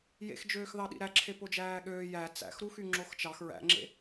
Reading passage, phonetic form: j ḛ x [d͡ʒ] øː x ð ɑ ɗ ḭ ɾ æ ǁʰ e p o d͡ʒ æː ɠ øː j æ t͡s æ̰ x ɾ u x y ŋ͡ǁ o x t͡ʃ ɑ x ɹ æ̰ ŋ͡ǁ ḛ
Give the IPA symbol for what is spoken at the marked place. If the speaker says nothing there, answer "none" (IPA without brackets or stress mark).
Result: d͡ʒ